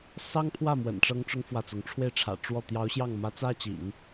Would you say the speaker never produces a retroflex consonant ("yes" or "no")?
no